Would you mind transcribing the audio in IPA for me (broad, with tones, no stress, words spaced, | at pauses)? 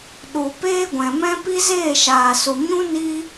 ɗu˨ peː˦ɡʷɛ̃˨mɛ̃˦ pi˦zeː˦˨ʃaː˨su˨ ɲũ˦ ni˦